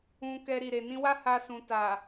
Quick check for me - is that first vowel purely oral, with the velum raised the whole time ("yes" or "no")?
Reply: no